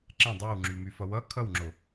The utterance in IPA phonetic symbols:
ǁ ɛ̃ dˤ i w ŋ͡ǁ y m y f ʌ w ʌ kʰ ʌ w ŋ͡ǁ o

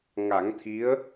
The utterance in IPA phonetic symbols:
ŋ a˨˩˦ ŋ t̪ʰ i˧˥ ə̯

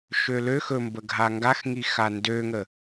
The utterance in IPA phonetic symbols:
ʃ ø l ø x ɵ m b ə ɡʱ a ŋ ɡ a x ŋ i x a n d ø ŋ ə

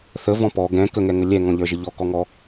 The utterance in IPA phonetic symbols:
θ ə v ɔ̃ p ɔ ɡ ɛ̃ k ə ŋ ɛ ŋ ə lʲ ɛ ŋ ɔ̃ ʎ ə˞ ʒ ə ʎ ɔ k ɔ ŋ ɔ

